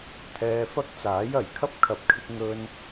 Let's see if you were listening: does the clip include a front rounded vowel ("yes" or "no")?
no